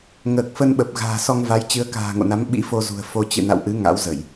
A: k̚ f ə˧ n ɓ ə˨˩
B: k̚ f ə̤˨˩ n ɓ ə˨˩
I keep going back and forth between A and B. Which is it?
A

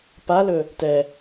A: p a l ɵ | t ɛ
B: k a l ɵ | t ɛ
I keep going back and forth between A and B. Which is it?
A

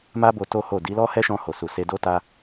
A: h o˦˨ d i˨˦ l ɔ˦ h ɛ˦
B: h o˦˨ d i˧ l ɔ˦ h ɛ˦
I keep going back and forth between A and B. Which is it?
A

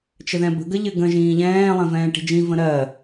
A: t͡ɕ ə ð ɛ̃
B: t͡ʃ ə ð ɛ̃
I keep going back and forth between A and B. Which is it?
B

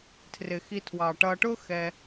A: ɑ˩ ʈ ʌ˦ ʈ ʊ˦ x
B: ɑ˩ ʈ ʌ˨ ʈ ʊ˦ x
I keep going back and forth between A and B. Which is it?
B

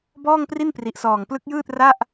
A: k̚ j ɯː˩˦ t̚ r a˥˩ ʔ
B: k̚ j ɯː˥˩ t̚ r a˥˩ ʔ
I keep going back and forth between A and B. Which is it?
B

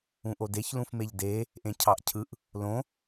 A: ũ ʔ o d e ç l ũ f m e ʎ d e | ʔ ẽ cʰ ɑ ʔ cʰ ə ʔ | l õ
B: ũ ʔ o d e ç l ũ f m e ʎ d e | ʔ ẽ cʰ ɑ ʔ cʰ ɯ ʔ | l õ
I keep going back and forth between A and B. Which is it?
B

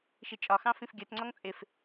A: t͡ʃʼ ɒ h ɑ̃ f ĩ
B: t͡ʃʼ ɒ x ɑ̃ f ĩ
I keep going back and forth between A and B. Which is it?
B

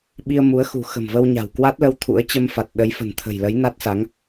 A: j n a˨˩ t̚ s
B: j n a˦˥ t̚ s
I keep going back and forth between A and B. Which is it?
B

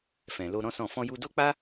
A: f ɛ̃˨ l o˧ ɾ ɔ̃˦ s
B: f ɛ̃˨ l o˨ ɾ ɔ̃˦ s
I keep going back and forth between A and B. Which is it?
A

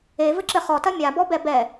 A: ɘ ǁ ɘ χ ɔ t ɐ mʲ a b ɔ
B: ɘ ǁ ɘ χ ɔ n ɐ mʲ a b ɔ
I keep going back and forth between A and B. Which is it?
A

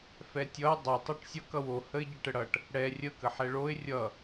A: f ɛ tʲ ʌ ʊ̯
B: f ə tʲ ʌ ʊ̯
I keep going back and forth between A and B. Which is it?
A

